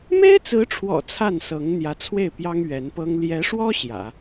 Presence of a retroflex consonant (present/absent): present